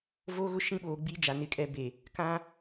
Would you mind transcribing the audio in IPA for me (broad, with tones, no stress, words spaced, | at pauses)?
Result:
vo˦ɣʊ˦ʃĩ˦˨ɓoː˨ ɡ͡bi˦d͡ʒa˨ nɪ˦kʼɛ˦ be˨ | kã˦